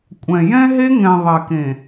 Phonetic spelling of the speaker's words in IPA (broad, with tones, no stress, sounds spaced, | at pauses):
kʷʼ ɛ̃˨ j ɛ̃˦ ɦ e˦ ŋ ɛ̃˨ ðˤ ɛ˨ k ẽ˨